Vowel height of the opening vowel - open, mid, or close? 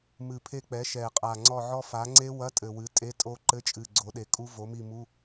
close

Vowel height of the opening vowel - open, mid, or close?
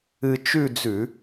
close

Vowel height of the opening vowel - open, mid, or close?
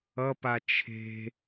mid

